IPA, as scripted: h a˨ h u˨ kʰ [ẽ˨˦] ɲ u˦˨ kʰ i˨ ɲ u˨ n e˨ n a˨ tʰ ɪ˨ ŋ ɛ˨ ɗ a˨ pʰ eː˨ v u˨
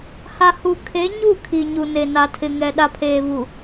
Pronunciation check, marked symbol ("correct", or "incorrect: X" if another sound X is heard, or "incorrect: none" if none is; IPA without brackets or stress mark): incorrect: e˨˦